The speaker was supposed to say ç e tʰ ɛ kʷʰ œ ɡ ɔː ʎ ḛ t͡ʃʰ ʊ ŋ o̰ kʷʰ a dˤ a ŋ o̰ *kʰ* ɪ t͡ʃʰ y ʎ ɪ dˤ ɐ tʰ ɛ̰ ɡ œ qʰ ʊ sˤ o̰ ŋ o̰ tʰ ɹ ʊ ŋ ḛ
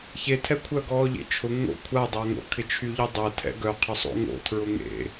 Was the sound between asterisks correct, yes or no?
yes